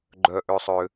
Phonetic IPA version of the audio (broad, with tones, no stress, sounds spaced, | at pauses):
ɡ͡ǃ œ˧ ʔ ø˧ sˤ ø˧